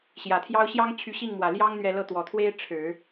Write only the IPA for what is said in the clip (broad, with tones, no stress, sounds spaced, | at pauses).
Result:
ɕ j ä˨˩ t̪ʰ j ɑ˥ ʊ̯ ɕ j ɑ˥ ŋ t͡ɕʰ y˧˥ ɕ i˥˩ ŋ m w ä˨˩ l j ɑ˥ ŋ n̪ ɥ ɛ˥˧ l ɤ˥˩ t̪ w ɔ˨˩ t̪ʰ w e˥ ɪ̯ ʈ͡ʂʰ ɻ̩˨˩˦